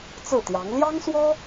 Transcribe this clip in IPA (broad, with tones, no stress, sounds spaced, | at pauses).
t͡s ɹ̩˥˩ t̪ j ɑ˧˥ ŋ l j ɑ˥ ŋ s w ɔ˥